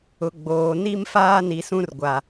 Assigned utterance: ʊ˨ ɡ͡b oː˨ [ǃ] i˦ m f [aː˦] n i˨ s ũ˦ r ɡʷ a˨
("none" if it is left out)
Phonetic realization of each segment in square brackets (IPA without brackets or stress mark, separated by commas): n, aː˦